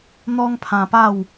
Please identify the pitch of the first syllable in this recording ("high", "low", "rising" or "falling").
high